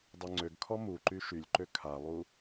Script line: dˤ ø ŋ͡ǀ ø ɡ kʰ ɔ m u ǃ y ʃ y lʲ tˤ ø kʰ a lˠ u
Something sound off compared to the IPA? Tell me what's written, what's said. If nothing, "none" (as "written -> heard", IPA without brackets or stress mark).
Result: tˤ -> ǃ